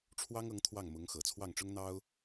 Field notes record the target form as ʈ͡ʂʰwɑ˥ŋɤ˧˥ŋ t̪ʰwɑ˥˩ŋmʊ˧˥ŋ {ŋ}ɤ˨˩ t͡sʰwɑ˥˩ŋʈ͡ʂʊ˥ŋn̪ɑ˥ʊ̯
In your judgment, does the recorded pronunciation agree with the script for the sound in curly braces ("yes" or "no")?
no